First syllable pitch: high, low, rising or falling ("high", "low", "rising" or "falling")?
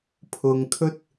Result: low